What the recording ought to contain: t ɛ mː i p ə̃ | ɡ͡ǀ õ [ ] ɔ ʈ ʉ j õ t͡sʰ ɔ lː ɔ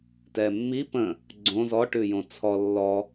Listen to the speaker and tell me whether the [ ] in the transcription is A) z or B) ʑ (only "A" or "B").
A